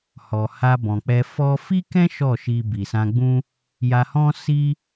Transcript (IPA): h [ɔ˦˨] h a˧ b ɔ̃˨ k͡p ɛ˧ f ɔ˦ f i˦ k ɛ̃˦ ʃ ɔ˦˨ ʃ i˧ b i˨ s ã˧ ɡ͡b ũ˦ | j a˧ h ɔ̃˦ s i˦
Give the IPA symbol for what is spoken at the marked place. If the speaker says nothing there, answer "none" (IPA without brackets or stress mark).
ɔ˨